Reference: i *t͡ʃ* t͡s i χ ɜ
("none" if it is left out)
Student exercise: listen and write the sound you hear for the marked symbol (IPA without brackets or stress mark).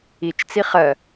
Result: t͡ʃ